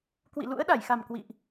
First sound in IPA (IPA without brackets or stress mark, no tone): k